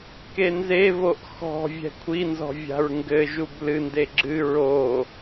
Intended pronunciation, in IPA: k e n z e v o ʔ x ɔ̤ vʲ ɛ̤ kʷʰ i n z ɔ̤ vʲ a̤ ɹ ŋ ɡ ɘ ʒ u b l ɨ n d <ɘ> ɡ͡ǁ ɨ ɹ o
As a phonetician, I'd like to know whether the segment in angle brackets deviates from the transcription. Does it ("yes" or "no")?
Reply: yes